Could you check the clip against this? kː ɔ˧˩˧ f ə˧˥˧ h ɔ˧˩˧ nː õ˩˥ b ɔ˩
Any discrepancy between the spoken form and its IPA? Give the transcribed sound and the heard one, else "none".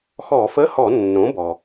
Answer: kː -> x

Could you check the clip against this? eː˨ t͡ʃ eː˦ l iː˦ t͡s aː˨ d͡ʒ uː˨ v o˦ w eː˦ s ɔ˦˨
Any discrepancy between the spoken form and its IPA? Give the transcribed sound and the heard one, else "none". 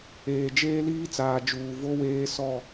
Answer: t͡ʃ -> d͡ʒ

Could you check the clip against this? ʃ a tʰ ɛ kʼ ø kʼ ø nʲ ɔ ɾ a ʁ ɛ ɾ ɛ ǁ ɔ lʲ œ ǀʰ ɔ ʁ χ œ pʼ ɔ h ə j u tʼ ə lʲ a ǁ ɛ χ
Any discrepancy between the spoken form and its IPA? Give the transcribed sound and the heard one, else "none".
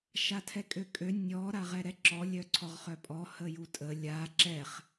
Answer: none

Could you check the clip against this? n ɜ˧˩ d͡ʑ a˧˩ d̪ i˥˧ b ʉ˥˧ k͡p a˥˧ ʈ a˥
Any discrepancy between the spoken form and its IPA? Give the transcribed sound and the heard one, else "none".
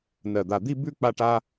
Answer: d͡ʑ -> d̪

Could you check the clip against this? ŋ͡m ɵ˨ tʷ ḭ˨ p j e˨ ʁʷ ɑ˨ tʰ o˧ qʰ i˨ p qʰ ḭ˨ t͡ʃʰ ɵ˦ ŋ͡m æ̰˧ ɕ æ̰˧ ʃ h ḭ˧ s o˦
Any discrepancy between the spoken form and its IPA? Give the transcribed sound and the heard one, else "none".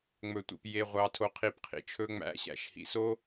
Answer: i˨ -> i˧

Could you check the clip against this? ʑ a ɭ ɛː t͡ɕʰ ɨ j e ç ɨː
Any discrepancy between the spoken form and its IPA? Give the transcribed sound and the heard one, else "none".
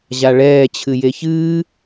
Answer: none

